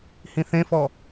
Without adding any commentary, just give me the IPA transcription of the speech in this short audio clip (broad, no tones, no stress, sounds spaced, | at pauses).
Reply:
h ĩ θ ẽ f ɔ